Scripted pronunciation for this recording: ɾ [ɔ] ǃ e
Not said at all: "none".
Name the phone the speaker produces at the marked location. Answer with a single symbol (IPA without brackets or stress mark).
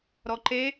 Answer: ɔ